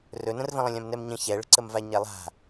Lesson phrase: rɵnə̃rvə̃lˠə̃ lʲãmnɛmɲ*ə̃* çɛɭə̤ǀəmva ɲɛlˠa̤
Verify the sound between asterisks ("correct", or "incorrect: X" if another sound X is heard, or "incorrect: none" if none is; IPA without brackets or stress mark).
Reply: correct